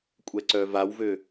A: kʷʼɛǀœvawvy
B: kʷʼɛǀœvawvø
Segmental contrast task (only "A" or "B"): B